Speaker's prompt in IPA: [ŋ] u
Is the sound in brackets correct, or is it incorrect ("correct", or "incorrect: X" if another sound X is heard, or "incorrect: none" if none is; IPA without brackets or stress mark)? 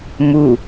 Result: incorrect: m